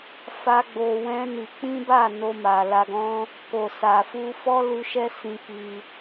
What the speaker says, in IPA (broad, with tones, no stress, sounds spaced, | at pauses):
f a˦ ɡ͡b o˧ w ɛ̃˦ n i˧ k͡p ĩ˦ b a˦˨ n o˧ m a˨ l a˧ ɡ ɔ̃˦ | k o˨ s a˨ f u˧ f ɔ˦ l u˧ ʃ ɛ˦ s ĩ˧ k i˧